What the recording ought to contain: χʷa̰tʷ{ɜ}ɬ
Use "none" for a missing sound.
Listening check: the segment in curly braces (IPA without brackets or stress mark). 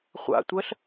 ɜ